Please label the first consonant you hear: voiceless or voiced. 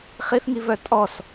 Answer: voiceless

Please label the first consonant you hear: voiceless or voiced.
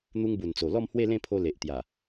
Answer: voiced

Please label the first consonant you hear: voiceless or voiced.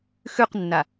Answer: voiceless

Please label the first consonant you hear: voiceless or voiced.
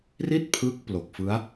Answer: voiced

